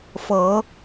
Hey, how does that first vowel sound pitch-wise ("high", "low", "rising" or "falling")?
rising